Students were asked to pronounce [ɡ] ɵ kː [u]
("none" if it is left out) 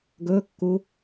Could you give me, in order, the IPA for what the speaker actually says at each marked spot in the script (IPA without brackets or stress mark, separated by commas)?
ɡ, u